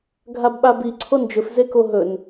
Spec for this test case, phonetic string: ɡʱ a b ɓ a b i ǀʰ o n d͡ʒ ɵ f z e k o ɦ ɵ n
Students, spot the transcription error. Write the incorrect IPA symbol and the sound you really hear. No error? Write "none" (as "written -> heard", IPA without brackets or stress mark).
none